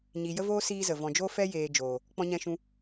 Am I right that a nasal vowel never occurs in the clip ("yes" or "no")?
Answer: no